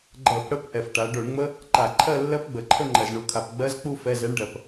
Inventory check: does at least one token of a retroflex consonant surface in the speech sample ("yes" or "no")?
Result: yes